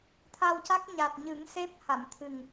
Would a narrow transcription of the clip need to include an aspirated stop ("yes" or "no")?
yes